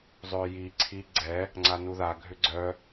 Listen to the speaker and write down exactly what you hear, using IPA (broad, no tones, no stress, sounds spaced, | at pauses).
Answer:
zˤ ʏː j i ǀʰ i ɡ͡ǀ ɛ | ŋ͡ǀ a n u ð a ɡʱ ʏ ɡ͡ǀ œ